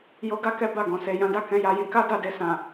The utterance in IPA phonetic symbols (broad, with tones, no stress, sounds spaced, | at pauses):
j o˧ ɡ a˦ k ɛ˦ b a˦˨ ɡ ɔ̃˨ s e˨ j ã˨˦ d a˦˨ k ɛ̃˨˦ j a˧ j ĩ˧ k a˦ d a˦˨ d e˧ s ã˨